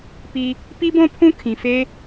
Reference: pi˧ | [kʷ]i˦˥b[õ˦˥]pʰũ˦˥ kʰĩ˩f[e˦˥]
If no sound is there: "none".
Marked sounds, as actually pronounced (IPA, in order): p, õ˦˥, e˦˥

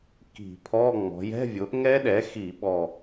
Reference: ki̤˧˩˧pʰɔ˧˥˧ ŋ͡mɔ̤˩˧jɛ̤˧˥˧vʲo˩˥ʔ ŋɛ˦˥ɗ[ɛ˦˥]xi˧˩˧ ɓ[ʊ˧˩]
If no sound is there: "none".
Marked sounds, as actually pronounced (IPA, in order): ɛ˩˥, ɔ˧˩

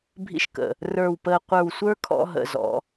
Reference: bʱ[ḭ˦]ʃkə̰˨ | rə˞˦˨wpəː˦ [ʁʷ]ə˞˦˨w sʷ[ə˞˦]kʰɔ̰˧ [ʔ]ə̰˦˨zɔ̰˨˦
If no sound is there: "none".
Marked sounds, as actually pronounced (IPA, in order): ḭ˦, qʷ, ə˞˦, ɦ

